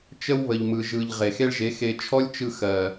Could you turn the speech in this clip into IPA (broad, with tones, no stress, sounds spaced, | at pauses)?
t͡ʃ ə˦ w β ə˨ ʎ m ɯ˨ ʒ ɯ˨ ʎ ʁ e˨ x e˦ ɭ ʒ e˨˦ x e˧ t͡ʃʰ ɔ˦ lʲ t͡ʃ ɯ˧ x ɜ˨